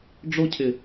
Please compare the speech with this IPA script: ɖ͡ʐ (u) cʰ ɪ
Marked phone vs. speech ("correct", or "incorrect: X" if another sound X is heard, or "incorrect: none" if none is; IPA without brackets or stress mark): incorrect: o